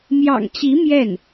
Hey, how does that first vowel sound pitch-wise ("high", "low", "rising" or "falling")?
low